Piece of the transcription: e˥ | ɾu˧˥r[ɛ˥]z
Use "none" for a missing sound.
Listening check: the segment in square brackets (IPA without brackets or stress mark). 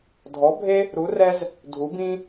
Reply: ɛ˥